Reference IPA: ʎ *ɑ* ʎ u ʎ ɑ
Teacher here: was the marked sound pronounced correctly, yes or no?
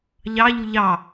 yes